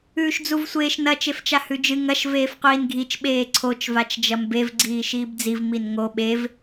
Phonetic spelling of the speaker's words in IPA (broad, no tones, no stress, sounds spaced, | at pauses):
ʉː ʃ d͡z u v sʷ eː ʃ n ɐ t͡ʃ e f t͡ʃ a h ʉ d͡ʒ ɨ ŋ ɐ ʃ v eː f qʷ iː n ɡʱ i t͡ʃ ɓ eː ǀʰ o t͡ʃ v a t͡ʃ d͡ʒ ɐ m b e v ɡ͡ǀ iː ʃ iː b d͡z i v m i n ŋ o ɓ e v